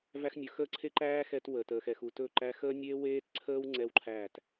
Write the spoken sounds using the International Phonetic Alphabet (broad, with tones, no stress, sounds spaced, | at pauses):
v æ˧ x nʲ ɵ˨ x əː˦˨ ǀʰ e˦ ǃ æː˦ x ɛ˧ t w ə˨ t əː˨ x ɛ˨ x u˨ t ɵː˦˨ ǃ æ˧ x əː˦ nʲ eː˦ w eː˦ t ǀʰ əː˦ w ŋ͡ǀ ɛ˦ w ǃʰ æː˦˨ t